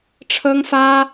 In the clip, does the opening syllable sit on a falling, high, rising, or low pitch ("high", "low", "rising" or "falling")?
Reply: high